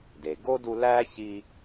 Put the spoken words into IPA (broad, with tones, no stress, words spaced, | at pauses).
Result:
de˩ɡo˥ du˧ læ˥ çi˧